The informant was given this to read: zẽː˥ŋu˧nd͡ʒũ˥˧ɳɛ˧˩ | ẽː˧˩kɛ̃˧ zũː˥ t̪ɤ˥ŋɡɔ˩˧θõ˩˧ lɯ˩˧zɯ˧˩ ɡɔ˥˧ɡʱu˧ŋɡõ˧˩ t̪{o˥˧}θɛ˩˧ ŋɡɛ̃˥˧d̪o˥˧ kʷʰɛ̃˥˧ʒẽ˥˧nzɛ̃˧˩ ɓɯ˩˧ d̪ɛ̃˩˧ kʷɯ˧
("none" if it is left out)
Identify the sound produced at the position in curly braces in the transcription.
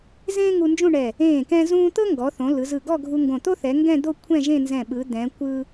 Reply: o˥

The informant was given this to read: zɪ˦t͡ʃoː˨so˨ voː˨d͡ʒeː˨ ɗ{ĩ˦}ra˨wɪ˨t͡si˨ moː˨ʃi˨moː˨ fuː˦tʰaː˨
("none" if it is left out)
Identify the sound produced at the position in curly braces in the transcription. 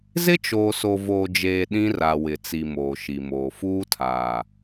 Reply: ĩ˦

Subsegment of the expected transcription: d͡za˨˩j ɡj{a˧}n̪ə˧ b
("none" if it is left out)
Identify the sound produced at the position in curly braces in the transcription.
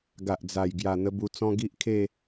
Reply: a˨˩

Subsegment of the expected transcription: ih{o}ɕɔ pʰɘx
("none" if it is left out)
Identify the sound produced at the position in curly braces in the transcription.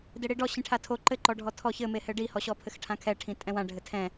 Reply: ɔ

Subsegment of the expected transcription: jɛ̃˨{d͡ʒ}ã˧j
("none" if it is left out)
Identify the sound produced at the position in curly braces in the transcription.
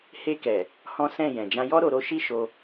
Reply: d͡ʒ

